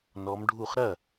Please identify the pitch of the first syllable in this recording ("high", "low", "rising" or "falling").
rising